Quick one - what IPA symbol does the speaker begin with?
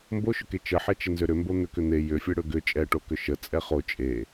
m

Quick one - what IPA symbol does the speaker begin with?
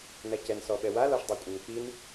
n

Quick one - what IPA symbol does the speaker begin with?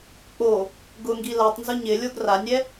k͡p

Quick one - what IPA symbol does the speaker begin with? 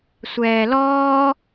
sʷ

